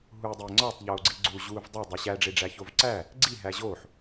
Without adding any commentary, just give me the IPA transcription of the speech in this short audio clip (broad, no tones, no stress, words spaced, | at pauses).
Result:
ɦu dˤeŋ͡ǀɒtˤ ʎoːɡ͡ǀiɡ͡ǀu ʑuːvdˤæ dˤeɕæ ɖ͡ʐeɖ͡ʐæçovǀæ | ɡ͡ǀi ɦæʑoːħ